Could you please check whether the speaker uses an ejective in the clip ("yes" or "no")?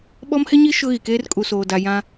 yes